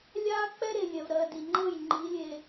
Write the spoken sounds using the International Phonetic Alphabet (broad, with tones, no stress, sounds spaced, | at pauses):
lʲ aː˦ k͡p ɛ˦ ɾ e˨ lʲ ɛ˨ v ɾ ɜː˨ d i˨ ŋ͡ǃ ɤ˦˨ j ŋ͡ǃ i˨˦ lʲ e˨